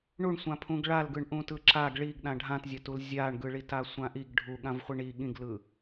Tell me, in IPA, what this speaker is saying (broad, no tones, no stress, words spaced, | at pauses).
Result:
ɳuɳsʷãpʰũɡ ɭalɡɯɳ ʔũtɯǁaɡ ɭiɡɗã ɖʱãtzʲatul zʲaɳɡɯɭita sʷãʔiɡ ɖʱuɠãv χʷiɳi ɠĩɡlɯ